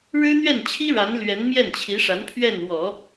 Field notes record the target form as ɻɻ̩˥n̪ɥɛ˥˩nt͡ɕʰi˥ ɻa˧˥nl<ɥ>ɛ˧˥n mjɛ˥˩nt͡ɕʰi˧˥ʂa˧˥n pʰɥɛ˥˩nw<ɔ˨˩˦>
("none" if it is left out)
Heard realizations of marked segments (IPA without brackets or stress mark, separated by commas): ɥ, ɔ˨˩˦